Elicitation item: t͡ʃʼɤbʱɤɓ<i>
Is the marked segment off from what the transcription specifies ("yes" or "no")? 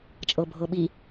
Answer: no